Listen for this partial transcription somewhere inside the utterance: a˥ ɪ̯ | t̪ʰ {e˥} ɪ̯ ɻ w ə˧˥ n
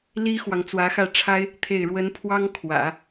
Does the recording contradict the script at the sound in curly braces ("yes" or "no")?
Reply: yes